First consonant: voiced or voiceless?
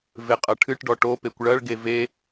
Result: voiced